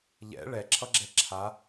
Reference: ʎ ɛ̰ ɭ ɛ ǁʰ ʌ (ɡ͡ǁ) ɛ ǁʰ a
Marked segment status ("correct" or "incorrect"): correct